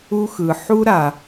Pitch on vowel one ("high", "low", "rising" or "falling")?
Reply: high